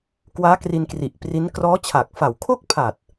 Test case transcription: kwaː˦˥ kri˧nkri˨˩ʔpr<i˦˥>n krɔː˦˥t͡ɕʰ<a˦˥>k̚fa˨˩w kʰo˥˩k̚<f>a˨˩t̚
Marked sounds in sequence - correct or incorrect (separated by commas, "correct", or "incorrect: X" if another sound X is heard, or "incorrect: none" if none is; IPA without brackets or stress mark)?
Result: correct, incorrect: a˨˩, incorrect: pʰ